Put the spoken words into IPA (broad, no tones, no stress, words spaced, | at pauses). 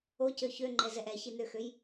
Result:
ocø çøŋ͡ǃɛzɛʔ ɛçinøxøj